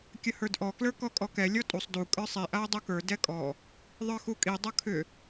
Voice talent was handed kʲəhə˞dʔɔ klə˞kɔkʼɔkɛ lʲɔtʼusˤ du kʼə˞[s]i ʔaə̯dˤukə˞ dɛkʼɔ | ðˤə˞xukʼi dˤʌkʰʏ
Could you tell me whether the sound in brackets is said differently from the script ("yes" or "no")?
yes